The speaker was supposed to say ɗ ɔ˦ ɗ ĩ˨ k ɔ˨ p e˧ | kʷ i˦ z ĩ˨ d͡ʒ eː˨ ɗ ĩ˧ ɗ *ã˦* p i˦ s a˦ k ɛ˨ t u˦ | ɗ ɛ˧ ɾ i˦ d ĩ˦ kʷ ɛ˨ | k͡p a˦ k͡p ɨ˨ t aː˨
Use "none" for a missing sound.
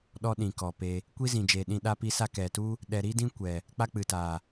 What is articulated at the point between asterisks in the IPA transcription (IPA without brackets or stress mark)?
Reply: a˦